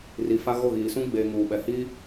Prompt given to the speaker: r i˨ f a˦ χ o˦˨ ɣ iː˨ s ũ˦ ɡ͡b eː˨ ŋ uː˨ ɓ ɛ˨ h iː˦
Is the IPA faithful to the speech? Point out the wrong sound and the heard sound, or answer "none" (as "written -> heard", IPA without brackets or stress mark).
χ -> ɣ